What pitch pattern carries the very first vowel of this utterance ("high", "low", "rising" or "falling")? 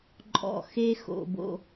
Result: low